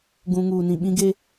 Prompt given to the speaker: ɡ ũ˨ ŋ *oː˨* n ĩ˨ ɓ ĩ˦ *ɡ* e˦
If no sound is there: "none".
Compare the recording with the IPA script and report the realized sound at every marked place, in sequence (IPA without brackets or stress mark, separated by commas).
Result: uː˨, ɡ